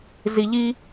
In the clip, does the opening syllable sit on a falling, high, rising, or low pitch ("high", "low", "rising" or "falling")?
low